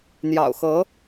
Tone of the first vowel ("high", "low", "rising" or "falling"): low